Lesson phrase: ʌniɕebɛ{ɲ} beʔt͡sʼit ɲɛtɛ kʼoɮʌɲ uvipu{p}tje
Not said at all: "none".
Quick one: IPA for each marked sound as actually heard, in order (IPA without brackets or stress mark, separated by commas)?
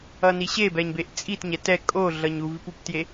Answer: ɲ, p